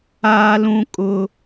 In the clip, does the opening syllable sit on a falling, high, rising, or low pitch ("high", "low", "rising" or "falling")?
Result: high